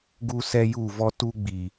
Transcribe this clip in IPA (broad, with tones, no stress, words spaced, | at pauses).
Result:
ɡu˦sɛ˦ ju˦˨ vɔ˦tu˦ɡ͡bi˨